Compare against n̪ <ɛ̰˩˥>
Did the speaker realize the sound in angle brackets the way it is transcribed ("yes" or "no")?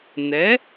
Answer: no